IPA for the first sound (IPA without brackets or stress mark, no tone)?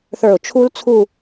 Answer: θ